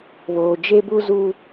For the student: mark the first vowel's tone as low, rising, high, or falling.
low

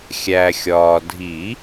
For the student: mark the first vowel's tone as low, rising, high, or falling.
low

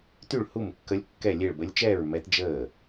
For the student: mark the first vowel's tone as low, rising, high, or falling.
falling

